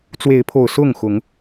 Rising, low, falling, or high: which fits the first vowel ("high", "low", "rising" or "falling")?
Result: rising